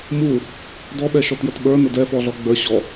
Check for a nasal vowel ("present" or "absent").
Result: absent